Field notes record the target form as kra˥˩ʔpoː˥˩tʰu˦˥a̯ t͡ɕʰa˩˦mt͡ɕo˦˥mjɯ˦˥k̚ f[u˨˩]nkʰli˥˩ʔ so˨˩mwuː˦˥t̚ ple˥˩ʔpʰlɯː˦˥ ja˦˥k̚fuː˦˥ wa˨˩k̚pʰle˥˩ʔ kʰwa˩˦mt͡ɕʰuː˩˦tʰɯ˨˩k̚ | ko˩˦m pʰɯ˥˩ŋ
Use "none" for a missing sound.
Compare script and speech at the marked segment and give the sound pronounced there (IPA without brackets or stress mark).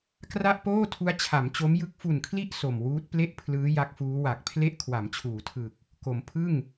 u˨˩